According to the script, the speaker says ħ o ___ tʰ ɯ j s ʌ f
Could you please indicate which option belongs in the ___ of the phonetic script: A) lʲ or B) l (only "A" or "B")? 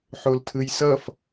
B